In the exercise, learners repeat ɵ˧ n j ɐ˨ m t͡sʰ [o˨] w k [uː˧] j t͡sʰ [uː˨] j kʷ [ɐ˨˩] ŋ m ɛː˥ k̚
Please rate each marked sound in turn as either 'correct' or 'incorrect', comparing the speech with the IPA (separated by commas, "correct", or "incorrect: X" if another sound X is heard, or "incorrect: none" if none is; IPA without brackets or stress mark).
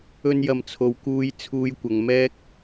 correct, correct, incorrect: uː˧, incorrect: ɐ˨